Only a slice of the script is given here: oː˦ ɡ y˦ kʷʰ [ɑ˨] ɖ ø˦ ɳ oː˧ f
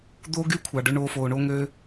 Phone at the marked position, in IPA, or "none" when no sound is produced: ɑ˨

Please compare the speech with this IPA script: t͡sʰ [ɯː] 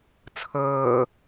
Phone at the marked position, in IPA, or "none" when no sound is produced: ɤː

